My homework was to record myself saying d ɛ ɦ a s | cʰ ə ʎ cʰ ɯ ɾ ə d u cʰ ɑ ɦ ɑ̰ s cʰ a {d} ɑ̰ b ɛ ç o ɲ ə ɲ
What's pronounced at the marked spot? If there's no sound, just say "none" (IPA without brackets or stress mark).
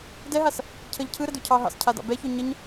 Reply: d